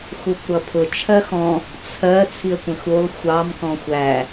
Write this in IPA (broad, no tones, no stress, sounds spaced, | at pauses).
x u kʷ ɾ ʌ pʰ ʊ t͡ʃʰ ɜ x ɔ̃ | t͡sʰ ɜ t͡sʰ i ə̯ kʷ ə̃ x u lˠ xʷ ɑ m k ɔ̃ xʷ æ